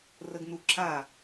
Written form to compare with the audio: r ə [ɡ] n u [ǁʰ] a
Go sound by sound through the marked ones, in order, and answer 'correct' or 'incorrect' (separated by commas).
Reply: correct, correct